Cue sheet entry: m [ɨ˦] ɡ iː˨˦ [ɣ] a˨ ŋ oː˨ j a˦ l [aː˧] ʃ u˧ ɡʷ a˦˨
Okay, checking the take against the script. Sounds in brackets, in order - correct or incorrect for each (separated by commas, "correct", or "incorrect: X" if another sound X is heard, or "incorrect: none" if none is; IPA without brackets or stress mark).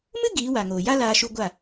correct, incorrect: w, correct